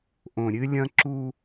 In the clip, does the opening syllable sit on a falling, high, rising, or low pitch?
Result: low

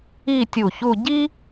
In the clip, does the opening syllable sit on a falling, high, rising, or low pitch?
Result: falling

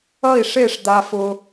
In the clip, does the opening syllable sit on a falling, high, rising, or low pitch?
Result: falling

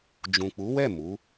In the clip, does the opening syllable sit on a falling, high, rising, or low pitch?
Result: low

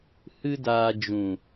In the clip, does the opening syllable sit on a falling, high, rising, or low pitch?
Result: high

